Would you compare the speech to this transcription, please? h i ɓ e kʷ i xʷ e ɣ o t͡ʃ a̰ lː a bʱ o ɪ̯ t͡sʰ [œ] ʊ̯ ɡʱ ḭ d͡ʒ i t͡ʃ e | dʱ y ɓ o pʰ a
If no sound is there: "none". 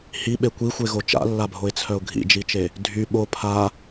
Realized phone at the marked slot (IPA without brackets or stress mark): œ